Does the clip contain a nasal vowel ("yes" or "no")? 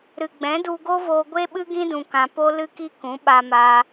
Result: yes